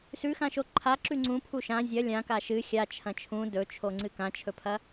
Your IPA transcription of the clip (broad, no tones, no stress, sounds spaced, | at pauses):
s ʉ x ã ʃ o ǃʰ a ǁ ʉ ŋ͡ǀ ũ pʰ u ʃ ã zʲ ɐ lʲ ã k a ʃ ɨ xʲ a t͡ʃʰ ɐ̃ t͡ʃʰ ũ d ɵ t͡ʃʰ o ŋ͡ǀ ɨ k ã t͡ʃʰ ɵ pʰ ɐ